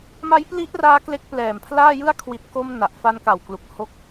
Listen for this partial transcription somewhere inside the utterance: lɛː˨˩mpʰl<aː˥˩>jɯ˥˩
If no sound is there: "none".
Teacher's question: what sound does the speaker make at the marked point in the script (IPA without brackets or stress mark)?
aː˥˩